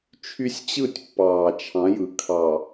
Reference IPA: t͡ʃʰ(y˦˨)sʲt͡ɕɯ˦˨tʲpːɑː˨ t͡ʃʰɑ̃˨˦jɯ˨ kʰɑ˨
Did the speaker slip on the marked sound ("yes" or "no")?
yes